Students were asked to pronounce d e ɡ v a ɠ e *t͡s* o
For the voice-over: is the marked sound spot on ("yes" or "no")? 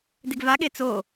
yes